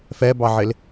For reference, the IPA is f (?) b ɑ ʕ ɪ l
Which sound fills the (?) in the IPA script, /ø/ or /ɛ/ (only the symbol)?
ɛ